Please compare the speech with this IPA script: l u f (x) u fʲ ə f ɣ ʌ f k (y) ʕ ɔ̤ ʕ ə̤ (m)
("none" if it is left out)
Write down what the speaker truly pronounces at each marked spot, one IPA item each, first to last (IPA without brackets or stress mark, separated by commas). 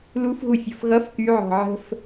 ɣ, y, f